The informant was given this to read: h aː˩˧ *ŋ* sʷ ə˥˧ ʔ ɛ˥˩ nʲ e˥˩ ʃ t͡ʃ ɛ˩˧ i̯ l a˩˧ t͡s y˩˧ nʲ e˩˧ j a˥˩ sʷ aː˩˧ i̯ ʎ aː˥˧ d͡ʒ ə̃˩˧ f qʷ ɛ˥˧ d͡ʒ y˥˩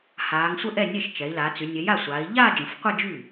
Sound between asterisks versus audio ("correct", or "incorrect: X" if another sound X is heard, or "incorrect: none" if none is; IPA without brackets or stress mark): correct